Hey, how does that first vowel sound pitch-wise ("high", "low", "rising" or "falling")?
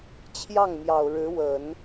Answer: falling